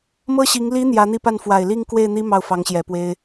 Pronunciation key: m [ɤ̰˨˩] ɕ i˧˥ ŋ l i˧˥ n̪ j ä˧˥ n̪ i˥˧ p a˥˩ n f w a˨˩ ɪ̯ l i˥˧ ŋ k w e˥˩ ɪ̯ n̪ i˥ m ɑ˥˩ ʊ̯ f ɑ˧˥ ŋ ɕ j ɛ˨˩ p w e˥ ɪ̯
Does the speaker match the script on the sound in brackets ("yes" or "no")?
no